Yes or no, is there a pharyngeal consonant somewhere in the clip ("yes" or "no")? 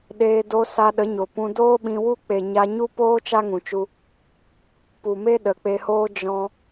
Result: no